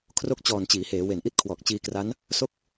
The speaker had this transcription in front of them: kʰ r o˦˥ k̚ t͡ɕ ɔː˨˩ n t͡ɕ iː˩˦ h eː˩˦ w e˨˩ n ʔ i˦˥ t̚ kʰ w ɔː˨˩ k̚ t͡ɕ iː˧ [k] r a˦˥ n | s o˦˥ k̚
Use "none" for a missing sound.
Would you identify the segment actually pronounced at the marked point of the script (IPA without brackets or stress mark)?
k